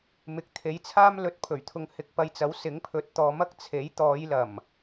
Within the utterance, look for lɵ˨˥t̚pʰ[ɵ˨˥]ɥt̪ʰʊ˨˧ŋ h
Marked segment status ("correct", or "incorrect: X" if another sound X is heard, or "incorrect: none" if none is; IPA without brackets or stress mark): incorrect: ɵ˨˩